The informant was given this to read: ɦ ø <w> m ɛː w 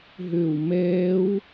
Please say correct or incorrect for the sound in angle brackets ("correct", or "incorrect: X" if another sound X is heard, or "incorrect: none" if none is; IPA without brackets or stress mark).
correct